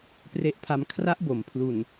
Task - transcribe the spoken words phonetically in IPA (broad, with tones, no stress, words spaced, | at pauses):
pre˦˥ʔpʰa˧m kʰra˦˥ʔbo˩˦m pʰlu˨˩n